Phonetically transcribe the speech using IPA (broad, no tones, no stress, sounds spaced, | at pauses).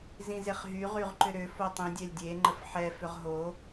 z ĩ z e χ ɦ y ʁ y ʁ ǃ ʏ ɾ ʏ f o tˤ ĩ dʲ ɛ lʲ dʲ e ŋ͡ǃ ə f ħ ɛ f ʏ ʁ ɦ o